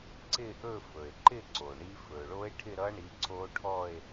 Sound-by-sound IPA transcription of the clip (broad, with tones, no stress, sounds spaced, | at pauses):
ǀ ɪ˥˧ ʔ ɵ˥˧ f ɵ˩ e̯ ǃ ɪ˥˧ ǀ o˩ ɳ i˦˥ f ɵ˩ ɭ o˦˥ e̯ ʈʰ ɪ˥˧ ɾ ʌ˦˥ ɳ i˨˦ ǀ o˦˥ ʈʰ ɔ˥˧ e̯